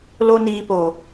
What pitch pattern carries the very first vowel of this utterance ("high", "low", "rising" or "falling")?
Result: high